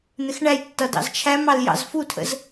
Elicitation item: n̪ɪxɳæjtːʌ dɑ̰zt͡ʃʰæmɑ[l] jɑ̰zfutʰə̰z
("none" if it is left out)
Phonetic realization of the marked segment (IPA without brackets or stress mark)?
l